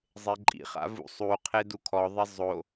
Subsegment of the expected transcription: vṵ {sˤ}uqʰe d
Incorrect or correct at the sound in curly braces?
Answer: correct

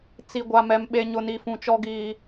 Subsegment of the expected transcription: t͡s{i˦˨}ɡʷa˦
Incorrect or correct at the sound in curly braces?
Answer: incorrect: i˦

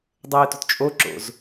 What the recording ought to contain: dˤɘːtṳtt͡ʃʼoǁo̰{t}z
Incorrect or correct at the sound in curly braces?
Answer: incorrect: none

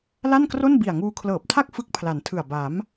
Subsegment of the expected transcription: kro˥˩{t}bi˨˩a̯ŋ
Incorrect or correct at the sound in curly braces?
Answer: incorrect: n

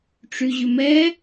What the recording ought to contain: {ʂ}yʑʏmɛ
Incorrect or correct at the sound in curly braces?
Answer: incorrect: ʈ͡ʂ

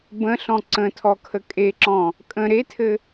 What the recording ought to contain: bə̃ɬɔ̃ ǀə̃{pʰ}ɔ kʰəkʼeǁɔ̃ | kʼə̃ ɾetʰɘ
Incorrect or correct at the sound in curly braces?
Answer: incorrect: tʰ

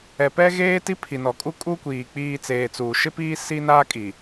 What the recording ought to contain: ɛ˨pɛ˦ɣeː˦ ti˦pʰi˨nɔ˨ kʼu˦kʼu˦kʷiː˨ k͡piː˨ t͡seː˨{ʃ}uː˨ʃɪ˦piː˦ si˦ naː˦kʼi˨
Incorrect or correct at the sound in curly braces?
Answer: incorrect: t͡s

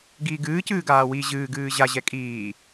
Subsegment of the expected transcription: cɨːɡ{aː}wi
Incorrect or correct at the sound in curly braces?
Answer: correct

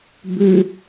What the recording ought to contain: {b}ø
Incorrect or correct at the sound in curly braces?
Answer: correct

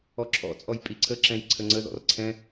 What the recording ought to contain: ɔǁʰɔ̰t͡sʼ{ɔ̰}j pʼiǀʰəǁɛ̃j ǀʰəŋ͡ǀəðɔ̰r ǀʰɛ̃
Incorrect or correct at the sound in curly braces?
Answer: incorrect: ɔ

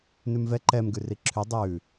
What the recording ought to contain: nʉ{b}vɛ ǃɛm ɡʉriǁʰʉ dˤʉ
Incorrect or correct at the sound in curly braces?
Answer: incorrect: m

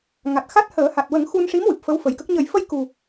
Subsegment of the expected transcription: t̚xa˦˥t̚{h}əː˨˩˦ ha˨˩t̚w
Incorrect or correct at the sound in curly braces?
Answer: correct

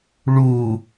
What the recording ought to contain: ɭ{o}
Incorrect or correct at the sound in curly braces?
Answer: incorrect: u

